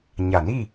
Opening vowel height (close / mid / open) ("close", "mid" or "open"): open